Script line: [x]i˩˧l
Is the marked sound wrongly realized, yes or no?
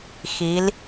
no